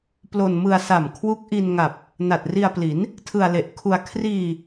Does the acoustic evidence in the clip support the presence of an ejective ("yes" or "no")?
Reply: no